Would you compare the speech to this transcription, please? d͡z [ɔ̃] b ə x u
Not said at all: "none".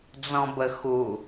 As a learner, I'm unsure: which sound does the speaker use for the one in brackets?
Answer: ɔ̃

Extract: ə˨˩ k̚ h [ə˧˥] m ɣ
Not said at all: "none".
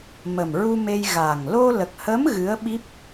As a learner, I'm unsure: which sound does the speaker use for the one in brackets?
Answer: ə˧˥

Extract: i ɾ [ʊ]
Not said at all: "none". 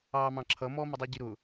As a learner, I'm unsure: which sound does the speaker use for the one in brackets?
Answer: ʊ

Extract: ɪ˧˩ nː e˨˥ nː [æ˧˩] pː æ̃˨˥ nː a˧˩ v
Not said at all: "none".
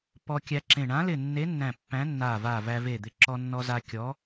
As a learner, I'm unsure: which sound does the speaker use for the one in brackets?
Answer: æ̃˧˩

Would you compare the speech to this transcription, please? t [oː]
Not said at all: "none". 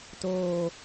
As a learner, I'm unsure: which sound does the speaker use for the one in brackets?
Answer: oː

